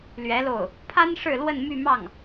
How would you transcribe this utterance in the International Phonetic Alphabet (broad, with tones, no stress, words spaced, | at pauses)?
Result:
lɥɛ˧˥lo˥˩ʊ̯ | pʰa˥n ʂɻ̩˥˧lwə˥˧n my˥˧ mɑ˥˩ŋ